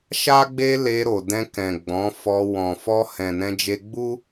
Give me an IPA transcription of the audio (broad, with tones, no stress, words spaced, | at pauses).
ʃa˦ɡ͡be˦le˧ɾo˨ dɛ̃˧kɛ̃˨ ɡ͡bɔ̃˨˦fɔ˧ wɔ̃˨fɔ˧hɛ̃˨ nɛ̃˧d͡ʒe˧ɡ͡bu˦